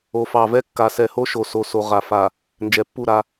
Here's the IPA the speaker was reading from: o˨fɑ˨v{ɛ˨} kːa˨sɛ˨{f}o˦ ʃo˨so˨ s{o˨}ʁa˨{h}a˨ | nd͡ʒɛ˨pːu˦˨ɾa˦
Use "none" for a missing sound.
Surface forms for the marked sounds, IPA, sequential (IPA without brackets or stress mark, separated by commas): ɛ˦, h, o˨, f